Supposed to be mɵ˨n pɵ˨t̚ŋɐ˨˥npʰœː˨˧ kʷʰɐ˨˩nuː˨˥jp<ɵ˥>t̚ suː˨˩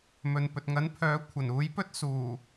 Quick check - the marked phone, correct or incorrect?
correct